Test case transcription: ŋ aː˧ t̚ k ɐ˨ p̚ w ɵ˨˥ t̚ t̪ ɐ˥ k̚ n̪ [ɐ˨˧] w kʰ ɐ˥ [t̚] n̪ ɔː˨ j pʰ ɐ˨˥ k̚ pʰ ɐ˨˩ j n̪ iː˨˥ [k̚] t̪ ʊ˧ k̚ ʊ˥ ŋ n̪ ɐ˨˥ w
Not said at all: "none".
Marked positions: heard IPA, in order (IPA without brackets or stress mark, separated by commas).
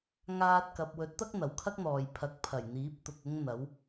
ɐ˨˩, k̚, p̚